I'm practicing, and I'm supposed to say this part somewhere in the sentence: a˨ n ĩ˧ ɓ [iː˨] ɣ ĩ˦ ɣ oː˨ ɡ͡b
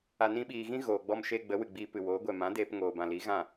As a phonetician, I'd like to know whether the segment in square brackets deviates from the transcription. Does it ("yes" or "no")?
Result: no